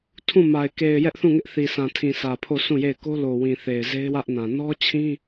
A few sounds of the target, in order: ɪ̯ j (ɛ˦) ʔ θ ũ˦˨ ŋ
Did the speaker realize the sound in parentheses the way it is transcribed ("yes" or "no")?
yes